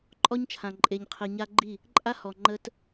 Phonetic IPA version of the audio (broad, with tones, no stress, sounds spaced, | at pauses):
ǃʼ ɔ˦ ɲ t͡ʃʰ ã˨ ǃʼ e˨ ɲ qʰ i˨ ɲ a˦ ɡ͡ǃ i˦˨ | ǃʼ a˦ h ɔ˨ ŋ͡ǃ ə˦ t